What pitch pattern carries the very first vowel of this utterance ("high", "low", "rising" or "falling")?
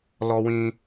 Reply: high